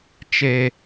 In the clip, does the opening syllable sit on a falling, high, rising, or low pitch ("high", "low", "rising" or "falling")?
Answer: high